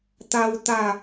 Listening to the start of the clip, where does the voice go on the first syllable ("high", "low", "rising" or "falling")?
high